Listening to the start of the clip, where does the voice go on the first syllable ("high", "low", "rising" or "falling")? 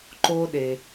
high